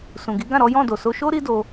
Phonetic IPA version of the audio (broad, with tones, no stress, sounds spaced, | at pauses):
s ũ˨ ɡ i˨˦ ɡ ã˦˨ ɾ ɔ˨˦ j ɔ̃˦˨ d o˨ s o˧ ʃ o˦ ɾ i˦ d o˧